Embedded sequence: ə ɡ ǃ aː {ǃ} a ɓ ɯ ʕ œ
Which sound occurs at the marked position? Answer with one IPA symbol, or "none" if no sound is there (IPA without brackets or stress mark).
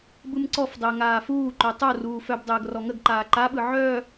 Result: ǃ